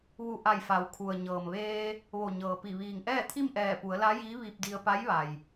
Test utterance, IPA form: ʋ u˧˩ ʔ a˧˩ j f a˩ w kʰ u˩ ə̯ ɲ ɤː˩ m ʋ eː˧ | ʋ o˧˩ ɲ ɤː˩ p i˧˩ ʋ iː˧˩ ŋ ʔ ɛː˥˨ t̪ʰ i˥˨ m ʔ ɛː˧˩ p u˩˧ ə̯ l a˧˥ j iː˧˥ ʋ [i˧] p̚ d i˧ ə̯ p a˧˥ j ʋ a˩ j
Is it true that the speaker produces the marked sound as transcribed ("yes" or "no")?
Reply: yes